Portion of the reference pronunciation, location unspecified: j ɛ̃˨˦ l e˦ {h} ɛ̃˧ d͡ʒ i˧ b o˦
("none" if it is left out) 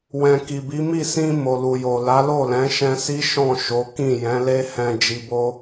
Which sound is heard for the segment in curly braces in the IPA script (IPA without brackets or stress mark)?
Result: h